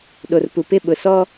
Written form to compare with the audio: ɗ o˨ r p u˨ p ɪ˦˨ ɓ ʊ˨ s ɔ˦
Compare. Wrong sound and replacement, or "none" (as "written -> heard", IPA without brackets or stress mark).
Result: none